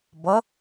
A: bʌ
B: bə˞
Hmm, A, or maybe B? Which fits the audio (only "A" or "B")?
A